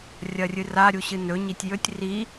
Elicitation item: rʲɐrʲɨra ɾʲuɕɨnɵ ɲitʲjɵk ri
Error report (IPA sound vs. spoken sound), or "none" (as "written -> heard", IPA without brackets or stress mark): k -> tʲ